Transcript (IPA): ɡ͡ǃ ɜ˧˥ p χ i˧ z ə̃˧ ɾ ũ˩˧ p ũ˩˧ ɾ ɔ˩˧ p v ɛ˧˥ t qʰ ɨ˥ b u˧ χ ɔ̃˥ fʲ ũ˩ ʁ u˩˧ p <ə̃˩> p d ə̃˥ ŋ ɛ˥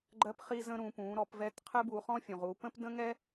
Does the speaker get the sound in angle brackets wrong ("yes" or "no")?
yes